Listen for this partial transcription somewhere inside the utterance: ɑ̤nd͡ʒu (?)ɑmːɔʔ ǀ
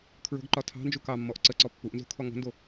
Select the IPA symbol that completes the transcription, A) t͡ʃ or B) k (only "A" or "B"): B